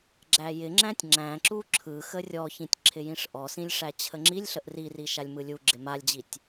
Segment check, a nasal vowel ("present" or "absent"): present